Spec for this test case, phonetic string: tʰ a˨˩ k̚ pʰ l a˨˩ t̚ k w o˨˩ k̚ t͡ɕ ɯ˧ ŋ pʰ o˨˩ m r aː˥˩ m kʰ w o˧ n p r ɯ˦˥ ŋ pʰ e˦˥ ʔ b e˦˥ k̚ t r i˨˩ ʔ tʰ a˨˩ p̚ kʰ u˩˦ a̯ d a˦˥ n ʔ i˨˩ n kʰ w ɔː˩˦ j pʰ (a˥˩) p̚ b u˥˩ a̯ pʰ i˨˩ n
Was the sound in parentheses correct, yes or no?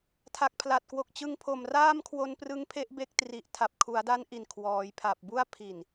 no